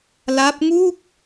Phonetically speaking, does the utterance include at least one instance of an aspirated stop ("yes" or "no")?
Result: no